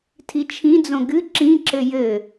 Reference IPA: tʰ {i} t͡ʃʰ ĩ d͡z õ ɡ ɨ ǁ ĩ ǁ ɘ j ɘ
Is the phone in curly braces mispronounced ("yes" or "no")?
no